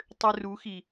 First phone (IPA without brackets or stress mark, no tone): tˤ